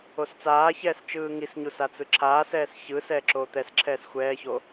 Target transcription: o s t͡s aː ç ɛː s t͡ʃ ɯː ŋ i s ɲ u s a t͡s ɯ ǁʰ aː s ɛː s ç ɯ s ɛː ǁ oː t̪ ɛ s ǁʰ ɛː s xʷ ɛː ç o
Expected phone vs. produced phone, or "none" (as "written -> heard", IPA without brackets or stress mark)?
none